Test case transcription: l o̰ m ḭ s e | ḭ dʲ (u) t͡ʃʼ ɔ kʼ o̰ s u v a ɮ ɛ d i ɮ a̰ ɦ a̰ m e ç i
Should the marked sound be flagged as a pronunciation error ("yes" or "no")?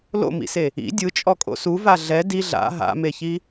yes